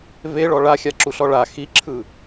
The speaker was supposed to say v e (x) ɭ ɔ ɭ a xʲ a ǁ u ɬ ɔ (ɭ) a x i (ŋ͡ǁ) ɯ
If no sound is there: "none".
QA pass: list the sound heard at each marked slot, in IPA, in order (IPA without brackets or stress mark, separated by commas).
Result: none, ɭ, ǁʰ